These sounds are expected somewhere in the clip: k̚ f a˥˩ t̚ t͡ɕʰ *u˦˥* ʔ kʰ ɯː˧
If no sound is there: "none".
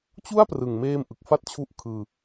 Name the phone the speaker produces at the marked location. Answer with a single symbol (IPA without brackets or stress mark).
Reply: u˦˥